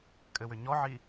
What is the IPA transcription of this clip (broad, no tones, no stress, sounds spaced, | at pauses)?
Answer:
kʼ ɘ w ʏ ɲ ɔ ʕ i